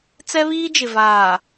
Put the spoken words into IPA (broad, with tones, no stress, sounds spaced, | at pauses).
t͡s ɛ˦ β iː˦ d͡ʒ ɪ˨ v aː˨